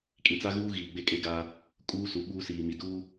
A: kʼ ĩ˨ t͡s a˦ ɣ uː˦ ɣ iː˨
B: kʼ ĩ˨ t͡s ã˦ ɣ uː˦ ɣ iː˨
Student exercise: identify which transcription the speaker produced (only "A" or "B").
A